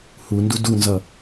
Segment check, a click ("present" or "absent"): absent